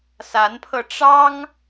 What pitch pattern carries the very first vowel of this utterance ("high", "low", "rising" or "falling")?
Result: rising